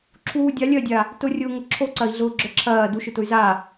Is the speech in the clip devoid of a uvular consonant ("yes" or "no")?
yes